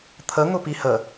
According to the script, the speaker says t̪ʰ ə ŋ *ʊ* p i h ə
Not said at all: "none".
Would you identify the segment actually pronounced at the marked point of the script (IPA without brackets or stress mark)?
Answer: ʊ